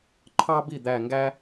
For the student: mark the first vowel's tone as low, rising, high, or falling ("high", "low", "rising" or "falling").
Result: high